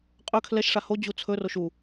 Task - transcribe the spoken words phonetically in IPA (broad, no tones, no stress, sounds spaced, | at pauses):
qʼ ɵ kʰ l ɛ ʃ ʂ a h o d͡ʑ u t͡sʰ ɵ r o ʃ u